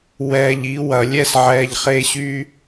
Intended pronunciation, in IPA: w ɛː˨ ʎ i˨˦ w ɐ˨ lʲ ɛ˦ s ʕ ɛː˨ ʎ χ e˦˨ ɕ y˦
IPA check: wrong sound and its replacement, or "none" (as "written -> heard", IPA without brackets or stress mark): none